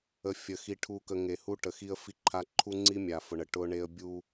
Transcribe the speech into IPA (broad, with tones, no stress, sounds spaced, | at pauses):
ə˨ fʲ ə˨ x i˨ ʈʰ u˨ k ə˨ ŋ e˨ h u˦ ʈ ə˨ x i˦ ə̯ f i˦ ǃʰ a˦ ǃʰ u˦ ŋ͡ǀ i˦ mʲ a˨ f ʊ˨ ɳ ə˨ ʈ ʊ˦ ɳ e˦ ə̯ bʲ u˦